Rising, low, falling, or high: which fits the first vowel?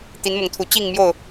rising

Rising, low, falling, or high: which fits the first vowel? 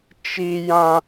high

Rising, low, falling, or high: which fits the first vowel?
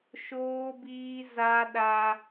high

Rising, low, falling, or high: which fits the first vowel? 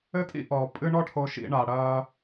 high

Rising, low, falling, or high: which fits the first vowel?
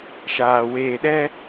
low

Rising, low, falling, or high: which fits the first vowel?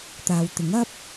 low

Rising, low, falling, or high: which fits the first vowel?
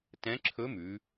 rising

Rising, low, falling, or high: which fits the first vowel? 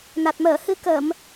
low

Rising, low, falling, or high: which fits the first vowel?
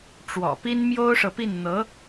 low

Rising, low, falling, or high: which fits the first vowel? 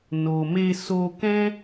low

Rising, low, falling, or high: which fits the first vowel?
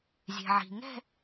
low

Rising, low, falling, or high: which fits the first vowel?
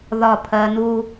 falling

